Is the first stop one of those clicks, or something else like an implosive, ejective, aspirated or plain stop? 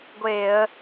plain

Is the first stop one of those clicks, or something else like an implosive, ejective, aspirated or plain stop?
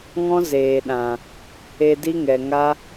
implosive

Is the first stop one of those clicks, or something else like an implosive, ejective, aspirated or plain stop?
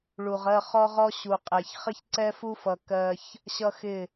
ejective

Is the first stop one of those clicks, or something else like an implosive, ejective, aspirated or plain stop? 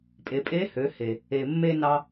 ejective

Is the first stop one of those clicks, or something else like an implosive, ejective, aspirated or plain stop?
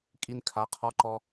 ejective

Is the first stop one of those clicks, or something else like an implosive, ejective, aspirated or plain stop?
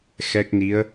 plain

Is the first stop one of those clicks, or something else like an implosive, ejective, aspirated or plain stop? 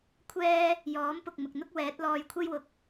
aspirated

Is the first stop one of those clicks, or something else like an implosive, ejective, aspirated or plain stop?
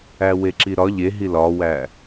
click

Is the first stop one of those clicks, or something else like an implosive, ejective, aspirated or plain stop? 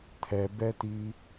aspirated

